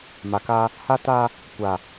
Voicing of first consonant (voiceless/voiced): voiced